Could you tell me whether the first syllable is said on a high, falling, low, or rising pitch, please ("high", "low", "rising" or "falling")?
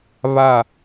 falling